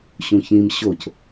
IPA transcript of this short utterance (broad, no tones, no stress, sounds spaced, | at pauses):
ɕ ũ ç ĩ m ɕ o c